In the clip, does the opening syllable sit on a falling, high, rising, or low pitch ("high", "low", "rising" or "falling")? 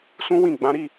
high